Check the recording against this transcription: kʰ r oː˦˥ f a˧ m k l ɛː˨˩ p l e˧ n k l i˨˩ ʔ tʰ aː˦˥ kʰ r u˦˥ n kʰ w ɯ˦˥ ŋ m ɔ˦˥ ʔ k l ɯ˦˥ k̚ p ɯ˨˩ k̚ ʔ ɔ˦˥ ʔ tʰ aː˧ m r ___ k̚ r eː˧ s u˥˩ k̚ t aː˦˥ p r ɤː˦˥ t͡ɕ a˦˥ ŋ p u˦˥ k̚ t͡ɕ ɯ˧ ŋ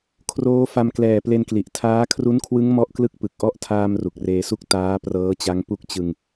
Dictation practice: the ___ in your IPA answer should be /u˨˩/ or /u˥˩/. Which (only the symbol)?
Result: u˨˩